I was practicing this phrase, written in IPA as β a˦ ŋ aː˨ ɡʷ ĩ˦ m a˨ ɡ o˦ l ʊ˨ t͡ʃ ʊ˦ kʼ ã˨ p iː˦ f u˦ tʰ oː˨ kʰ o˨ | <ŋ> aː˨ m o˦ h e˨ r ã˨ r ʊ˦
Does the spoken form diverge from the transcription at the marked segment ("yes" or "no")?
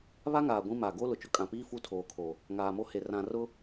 no